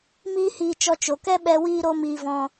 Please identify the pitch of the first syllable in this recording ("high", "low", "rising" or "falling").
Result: high